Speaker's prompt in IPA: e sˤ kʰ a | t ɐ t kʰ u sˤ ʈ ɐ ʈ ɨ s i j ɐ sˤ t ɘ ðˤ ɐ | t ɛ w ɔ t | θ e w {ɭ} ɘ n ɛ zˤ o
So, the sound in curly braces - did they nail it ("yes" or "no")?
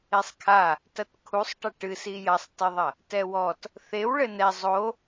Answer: yes